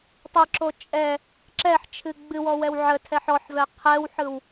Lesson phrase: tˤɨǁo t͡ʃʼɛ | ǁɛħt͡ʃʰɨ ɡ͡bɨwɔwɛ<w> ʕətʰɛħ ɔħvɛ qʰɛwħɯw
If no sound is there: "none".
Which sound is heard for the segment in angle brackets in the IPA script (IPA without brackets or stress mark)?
w